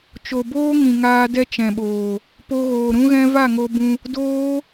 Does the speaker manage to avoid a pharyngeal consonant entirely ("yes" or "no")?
yes